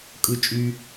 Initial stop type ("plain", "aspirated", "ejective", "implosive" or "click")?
ejective